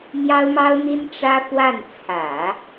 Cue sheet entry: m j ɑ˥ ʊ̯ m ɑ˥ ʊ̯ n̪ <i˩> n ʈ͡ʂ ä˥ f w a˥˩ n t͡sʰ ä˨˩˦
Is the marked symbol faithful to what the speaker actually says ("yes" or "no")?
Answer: no